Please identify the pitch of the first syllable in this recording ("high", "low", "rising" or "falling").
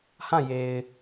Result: falling